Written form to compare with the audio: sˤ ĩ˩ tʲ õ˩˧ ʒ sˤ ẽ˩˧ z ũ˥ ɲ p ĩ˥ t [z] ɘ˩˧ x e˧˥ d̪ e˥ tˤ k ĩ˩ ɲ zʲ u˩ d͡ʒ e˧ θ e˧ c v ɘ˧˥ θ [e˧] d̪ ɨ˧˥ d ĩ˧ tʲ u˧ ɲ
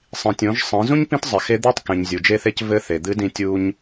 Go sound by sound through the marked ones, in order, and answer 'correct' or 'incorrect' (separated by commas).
incorrect, incorrect